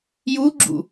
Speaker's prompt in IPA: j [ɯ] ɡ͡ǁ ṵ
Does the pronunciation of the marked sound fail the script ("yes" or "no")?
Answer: yes